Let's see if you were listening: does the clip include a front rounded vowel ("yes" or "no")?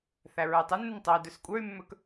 yes